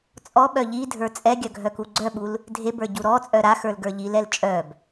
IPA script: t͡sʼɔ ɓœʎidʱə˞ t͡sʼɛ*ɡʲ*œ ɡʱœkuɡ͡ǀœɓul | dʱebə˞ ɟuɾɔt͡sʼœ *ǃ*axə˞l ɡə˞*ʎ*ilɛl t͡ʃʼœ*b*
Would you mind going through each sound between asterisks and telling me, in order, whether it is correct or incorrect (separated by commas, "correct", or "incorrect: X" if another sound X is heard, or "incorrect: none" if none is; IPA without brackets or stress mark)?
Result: correct, incorrect: ɾ, correct, correct